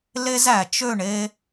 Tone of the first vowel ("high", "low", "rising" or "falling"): high